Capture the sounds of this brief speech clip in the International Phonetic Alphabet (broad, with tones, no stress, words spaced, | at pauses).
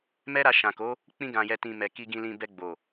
mɛ˦ɾa˧ʃã˨ko˨˦ | k͡pĩ˧ɡã˨jɛ˨tĩ˨ mɛ˨ki˧ ɡĩ˧lĩ˧bɛ˧ ɡ͡bo˨